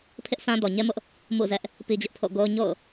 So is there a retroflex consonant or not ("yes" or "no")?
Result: no